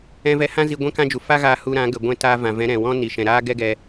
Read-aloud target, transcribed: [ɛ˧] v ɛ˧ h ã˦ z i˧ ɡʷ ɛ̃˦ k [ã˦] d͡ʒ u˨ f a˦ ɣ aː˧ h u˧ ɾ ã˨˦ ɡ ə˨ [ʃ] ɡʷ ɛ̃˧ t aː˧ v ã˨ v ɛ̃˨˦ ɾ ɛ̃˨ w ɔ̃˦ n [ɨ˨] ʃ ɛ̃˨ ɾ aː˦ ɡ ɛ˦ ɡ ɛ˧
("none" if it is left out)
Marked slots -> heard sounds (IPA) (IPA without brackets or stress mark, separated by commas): ɛ̃˧, ã˦, none, i˨